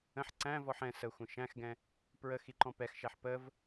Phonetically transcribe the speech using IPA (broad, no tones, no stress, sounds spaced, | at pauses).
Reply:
ə̃ ħ ǀ æ̃ v ɔ ħ ɛ̃ s ə xʷ ə̃ ʃ æ̃ x ɡ ɛ̃ | p ɹ ə x i ǃ ɔ̃ p ɛ x ʃ æ ħ p ə v